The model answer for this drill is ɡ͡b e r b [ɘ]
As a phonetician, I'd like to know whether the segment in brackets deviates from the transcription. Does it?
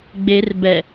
yes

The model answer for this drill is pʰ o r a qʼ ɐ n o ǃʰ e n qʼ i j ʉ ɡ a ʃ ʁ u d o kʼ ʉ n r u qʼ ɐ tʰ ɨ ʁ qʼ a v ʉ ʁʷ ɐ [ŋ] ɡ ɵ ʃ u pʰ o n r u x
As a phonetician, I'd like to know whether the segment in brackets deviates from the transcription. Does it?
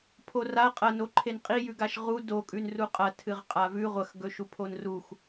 yes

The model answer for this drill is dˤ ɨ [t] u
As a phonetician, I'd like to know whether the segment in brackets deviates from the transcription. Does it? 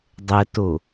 no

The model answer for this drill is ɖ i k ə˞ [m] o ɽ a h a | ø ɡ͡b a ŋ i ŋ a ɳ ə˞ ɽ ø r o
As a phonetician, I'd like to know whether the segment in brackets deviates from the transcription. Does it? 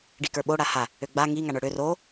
yes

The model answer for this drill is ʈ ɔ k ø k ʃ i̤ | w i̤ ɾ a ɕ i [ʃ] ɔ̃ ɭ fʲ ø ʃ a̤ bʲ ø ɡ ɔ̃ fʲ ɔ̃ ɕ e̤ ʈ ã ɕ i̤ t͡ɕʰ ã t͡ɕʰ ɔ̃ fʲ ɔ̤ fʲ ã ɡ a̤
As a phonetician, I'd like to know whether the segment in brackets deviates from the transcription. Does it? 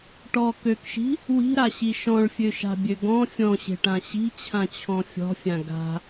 no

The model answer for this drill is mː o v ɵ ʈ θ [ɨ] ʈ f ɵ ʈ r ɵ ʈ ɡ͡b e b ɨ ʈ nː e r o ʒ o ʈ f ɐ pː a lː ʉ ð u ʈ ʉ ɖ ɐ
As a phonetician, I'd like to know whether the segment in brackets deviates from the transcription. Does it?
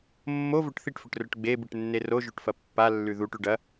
yes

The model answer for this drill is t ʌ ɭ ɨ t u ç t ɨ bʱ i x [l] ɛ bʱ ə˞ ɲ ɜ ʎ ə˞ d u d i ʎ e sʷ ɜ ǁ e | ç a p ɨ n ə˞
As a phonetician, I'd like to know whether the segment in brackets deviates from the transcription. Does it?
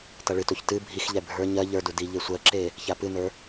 yes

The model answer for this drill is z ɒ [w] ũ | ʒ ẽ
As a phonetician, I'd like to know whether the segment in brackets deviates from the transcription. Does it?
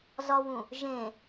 no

